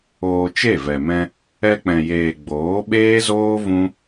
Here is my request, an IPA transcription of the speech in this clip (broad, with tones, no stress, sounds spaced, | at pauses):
oː˧ t͡ʃ e˦˨ v ɛ˨ m ɛ̃˧ | ɛ˧ k͡p ɛ̃˨ j eː˨ ɡ͡b oː˨˦ ɓ eː˦ z oː˦ v ũ˦